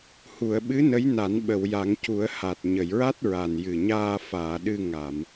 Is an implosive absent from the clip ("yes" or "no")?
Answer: no